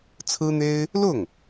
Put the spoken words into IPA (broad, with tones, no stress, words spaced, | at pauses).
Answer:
t͡sʰɹ̩˥n̪e˥ɪ̯ | lʊ˥˩ŋ